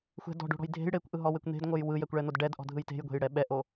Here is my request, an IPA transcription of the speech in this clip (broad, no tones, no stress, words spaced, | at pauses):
xʷɛ̤ dɔ̤ɖo̤ɽɔ̤j dʱe̤j ɽekʷʔɯɦɔwekʷ n̪e̤dŋʷɤj wɯjɛkʷɭɛn̪od ɖɛdʔɔ̤dʱɯj te̤jɡʷe̤jɽɛ ɓɛʔo